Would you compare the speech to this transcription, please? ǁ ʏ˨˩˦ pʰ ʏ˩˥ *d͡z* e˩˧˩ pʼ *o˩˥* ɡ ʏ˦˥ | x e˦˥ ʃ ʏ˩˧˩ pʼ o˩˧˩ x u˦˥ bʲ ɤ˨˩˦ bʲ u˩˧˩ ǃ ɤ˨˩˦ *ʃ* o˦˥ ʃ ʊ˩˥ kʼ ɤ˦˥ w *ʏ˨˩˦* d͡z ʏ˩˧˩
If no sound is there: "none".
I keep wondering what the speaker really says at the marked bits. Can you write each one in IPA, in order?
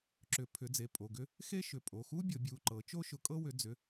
d͡z, o˩˧˩, t͡ʃ, ʏ˩˥

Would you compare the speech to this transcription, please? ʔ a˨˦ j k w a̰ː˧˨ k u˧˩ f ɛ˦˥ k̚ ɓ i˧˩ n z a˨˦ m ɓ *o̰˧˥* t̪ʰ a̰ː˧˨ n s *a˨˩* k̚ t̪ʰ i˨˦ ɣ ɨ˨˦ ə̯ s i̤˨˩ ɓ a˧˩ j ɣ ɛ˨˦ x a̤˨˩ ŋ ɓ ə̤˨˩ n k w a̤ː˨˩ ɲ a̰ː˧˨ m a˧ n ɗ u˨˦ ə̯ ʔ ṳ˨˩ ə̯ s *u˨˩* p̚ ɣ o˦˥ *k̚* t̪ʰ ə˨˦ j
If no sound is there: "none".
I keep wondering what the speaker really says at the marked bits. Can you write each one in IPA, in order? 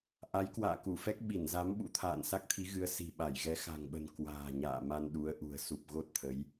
ṵ˧˥, a˦˥, u˨˩, t̚

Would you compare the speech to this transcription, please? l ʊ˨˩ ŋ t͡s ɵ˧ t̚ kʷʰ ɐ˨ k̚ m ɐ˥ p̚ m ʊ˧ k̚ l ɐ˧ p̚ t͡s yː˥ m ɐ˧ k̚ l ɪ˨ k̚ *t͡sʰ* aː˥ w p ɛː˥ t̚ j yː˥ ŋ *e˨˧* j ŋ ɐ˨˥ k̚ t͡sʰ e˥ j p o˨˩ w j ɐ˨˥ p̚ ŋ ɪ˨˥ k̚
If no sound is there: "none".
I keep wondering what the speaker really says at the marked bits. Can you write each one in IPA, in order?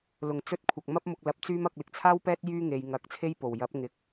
t͡sʰ, e˨˧

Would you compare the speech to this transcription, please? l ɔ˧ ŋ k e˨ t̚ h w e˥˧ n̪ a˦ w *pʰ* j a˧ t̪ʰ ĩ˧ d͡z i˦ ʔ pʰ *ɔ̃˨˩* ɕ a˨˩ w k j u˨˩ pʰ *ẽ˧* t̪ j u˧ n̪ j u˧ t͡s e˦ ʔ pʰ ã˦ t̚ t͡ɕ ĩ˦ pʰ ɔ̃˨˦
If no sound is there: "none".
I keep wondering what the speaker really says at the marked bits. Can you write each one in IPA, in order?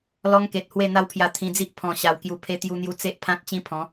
pʰ, ɔ̃˨˩, e˧

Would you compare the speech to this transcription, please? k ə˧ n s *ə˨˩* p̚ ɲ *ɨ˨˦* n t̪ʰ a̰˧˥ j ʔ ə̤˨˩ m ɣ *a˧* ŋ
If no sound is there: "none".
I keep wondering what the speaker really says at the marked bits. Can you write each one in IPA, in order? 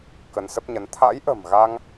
ə˦˥, ə˨˦, a˧

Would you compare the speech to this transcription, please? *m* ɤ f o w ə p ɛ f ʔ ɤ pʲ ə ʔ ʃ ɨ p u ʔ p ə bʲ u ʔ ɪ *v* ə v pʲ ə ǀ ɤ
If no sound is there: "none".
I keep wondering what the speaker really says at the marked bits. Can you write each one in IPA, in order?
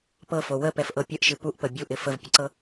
p, f

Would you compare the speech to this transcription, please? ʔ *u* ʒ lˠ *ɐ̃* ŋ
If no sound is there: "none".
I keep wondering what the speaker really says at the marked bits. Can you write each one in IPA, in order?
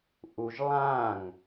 u, ã

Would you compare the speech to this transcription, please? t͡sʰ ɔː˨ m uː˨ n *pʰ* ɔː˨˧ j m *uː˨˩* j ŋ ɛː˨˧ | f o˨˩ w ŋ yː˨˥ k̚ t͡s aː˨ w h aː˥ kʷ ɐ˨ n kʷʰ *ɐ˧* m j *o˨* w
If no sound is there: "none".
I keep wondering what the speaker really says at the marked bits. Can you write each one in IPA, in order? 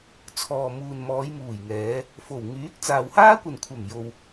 m, uː˨˩, ɐ˨˩, o˨

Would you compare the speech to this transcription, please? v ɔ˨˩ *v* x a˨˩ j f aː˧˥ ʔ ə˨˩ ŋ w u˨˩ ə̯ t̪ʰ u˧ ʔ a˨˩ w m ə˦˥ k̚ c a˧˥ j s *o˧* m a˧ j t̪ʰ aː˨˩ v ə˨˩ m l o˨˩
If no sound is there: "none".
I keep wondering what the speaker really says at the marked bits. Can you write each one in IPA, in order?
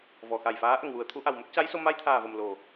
none, o˧

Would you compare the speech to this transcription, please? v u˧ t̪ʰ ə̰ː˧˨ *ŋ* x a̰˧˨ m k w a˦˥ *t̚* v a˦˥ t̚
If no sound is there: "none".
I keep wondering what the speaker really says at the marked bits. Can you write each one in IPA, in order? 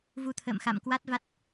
m, t̚

